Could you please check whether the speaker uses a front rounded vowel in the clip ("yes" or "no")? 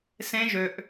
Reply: yes